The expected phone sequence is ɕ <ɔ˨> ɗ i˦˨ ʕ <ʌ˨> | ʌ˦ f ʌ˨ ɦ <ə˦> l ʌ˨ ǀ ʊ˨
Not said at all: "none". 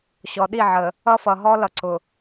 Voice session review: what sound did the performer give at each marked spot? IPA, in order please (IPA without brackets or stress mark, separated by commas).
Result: ɔ˨, ə˨, ɔ˦